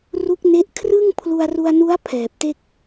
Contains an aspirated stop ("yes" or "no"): yes